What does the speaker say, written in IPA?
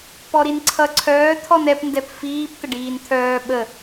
pɔɾinǀʰʌ ǀʰœːt̪ʰɔn ɛpndɛp fiːp t̪əɖiːnt̪ʰœː ɓə

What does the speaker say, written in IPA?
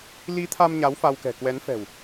li˨˦t̪ʰa˧m ɲa˨˦wfa˧wkɛ̤˨˩ kwɛ˨˦nfɛ̤˨˩w

